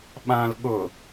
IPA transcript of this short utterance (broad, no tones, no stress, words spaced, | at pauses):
ɓãl ɠʊ